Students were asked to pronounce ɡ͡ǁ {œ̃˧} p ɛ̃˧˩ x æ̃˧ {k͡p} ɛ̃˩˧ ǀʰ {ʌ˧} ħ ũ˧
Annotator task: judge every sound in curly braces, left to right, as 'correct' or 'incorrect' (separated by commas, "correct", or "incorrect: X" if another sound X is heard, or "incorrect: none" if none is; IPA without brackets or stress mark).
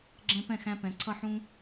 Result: incorrect: ɛ̃˧, incorrect: p, correct